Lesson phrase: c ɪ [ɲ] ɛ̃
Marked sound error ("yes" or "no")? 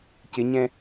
no